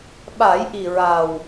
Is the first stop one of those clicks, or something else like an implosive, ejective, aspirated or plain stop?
implosive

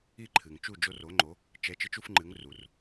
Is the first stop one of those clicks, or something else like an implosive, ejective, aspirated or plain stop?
click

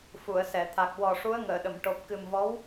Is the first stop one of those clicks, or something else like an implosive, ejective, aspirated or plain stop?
aspirated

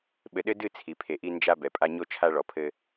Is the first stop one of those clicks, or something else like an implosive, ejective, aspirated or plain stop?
implosive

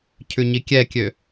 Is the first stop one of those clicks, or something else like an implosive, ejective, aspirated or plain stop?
aspirated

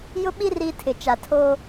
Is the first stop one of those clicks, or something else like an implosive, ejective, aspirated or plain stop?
implosive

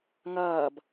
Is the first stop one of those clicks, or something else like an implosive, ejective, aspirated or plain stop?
plain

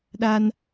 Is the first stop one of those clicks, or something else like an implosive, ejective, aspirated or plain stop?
implosive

